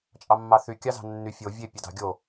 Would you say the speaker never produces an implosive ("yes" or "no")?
yes